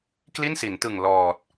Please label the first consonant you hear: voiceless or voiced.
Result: voiceless